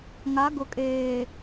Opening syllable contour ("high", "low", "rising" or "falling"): rising